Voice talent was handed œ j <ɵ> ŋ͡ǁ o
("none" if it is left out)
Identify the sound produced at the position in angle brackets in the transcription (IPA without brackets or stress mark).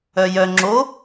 œ